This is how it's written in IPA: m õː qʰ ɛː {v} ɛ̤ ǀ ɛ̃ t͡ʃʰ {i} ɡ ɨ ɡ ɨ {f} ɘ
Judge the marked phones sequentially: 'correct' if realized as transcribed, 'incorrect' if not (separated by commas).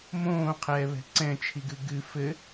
incorrect, correct, correct